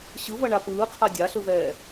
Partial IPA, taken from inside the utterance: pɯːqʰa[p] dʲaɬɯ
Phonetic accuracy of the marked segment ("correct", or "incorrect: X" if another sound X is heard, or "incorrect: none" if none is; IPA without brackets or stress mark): incorrect: none